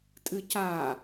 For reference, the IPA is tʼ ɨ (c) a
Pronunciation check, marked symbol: correct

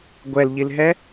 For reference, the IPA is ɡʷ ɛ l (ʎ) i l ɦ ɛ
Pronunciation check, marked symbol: correct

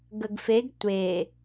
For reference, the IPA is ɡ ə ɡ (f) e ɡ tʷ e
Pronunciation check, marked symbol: correct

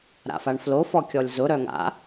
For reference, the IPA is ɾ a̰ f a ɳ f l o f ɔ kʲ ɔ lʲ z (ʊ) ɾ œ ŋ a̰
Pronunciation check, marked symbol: correct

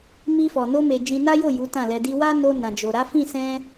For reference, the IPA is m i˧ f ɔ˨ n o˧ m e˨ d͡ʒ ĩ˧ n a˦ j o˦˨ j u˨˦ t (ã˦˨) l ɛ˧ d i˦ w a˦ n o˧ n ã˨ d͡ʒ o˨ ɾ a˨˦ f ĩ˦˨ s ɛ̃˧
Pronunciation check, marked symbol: correct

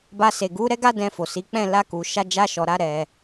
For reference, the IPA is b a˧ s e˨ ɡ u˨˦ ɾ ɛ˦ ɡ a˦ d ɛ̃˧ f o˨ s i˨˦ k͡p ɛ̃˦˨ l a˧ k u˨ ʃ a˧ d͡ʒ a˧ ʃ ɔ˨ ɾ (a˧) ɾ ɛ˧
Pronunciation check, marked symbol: correct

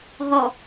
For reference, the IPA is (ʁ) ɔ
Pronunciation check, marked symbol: correct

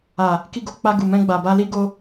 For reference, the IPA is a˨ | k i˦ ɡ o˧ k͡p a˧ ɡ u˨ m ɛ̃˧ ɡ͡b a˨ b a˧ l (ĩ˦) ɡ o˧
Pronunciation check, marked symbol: incorrect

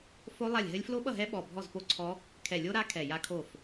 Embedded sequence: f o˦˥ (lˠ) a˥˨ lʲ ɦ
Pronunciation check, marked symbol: correct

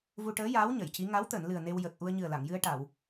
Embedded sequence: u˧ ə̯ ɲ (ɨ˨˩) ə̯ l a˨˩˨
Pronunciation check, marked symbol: correct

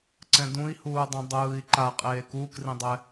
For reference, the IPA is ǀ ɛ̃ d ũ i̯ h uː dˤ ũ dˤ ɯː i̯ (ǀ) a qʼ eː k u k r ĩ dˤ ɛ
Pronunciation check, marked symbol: incorrect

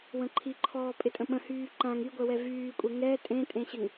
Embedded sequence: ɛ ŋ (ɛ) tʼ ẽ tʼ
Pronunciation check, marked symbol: correct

